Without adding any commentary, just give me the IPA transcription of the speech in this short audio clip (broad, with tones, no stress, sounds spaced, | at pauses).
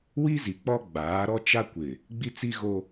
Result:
w i˦ z i˨ k͡p ɔ˦ ɡ͡b aː˨˦ ɾ ɔ˦ t͡ʃ a˦ kʷ ɪ˨ | ɡ͡b i˦ t͡s i˦ ɣ o˦